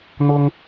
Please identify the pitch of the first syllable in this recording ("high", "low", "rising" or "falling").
high